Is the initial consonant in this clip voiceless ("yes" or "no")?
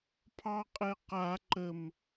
yes